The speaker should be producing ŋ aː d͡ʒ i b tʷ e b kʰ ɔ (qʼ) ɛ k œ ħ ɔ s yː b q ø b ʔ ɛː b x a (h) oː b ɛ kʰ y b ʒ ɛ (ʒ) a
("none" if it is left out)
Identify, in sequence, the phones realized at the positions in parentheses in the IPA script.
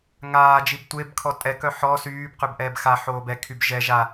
tʼ, ħ, ʒ

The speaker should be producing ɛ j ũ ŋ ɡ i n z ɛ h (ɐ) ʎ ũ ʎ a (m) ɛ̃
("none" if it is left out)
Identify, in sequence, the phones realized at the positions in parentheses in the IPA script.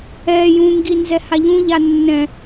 a, nː

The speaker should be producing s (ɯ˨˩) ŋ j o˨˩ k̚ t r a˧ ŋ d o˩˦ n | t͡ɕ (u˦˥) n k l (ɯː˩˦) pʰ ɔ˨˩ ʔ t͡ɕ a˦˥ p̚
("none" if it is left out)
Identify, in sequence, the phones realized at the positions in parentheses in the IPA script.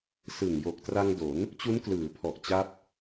ɯ˨˩, u˦˥, ɯː˩˦

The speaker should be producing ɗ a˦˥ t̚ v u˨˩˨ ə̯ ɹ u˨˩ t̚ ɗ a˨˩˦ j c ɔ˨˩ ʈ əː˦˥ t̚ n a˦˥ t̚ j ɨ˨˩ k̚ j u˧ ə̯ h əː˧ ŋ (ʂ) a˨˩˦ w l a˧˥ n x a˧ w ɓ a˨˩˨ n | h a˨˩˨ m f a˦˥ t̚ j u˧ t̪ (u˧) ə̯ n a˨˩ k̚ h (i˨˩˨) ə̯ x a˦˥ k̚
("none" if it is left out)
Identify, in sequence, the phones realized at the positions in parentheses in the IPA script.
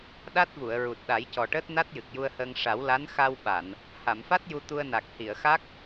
ʂ, u˧, i˨˩˨

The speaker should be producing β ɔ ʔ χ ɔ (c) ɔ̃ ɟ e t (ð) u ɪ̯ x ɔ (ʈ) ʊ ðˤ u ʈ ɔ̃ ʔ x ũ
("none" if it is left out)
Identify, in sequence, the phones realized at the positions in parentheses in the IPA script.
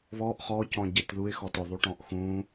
c, ð, t

